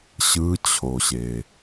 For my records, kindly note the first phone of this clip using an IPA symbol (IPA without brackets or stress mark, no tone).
ɕ